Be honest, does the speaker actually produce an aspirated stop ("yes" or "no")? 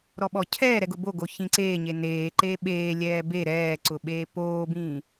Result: yes